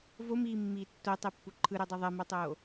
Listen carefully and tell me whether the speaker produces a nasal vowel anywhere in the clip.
no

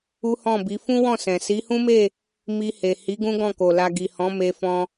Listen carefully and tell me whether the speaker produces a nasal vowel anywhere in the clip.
yes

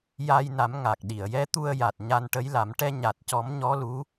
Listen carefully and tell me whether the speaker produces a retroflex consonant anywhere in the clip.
yes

